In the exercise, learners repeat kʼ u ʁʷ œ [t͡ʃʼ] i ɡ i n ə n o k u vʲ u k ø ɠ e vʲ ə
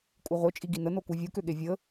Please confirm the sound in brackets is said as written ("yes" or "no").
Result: yes